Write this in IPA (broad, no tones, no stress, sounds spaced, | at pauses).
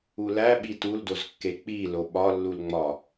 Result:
u l æ ɓ i t u l d o z kː e k͡p i l o ɓ ɒ lː u l ŋ͡m ɒ